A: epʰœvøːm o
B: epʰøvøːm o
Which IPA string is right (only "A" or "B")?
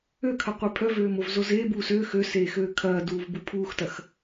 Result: A